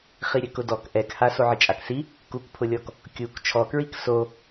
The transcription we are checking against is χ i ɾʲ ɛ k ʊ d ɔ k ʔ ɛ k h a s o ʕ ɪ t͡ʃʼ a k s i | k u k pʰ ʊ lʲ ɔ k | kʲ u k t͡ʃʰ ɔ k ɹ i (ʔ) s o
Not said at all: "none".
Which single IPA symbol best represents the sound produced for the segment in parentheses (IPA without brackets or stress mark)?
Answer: k